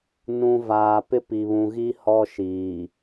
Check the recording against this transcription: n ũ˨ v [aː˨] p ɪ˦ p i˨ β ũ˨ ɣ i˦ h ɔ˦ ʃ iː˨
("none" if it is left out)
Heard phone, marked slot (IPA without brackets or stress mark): aː˨